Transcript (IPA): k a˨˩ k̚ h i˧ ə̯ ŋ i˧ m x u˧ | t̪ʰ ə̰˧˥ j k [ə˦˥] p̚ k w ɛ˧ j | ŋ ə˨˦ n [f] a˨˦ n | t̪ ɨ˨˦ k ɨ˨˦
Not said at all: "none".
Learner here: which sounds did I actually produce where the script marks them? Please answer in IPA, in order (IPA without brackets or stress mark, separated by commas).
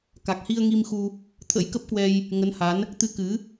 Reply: ə˦˥, h